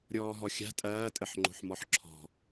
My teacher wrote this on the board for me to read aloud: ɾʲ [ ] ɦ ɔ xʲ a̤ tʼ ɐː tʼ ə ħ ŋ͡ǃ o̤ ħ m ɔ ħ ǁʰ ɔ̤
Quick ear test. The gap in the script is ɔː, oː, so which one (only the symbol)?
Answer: ɔː